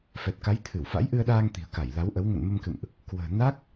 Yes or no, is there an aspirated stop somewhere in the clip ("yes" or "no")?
yes